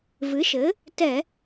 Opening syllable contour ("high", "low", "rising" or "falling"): rising